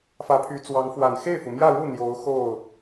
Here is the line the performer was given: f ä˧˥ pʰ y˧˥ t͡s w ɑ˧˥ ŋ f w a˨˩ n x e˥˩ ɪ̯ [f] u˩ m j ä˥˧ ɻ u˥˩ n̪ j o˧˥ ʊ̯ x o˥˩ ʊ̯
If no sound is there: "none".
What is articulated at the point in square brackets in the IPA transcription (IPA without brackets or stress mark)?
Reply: f